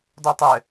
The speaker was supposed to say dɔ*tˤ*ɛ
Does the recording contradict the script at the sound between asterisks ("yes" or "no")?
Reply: no